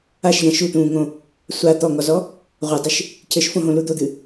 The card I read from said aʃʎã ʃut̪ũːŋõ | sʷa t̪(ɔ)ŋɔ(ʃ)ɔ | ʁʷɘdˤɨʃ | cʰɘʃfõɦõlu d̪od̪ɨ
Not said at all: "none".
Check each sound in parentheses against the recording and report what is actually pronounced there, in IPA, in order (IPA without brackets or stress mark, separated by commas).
ɔ, z